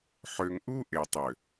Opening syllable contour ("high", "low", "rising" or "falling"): low